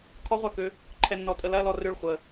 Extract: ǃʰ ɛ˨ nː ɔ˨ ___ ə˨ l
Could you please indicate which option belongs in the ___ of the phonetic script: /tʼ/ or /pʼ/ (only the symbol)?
tʼ